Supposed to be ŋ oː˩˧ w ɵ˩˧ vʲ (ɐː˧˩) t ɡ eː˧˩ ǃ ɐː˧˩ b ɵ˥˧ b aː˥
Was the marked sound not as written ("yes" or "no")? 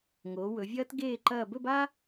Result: yes